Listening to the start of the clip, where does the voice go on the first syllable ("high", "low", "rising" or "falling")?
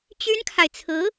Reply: high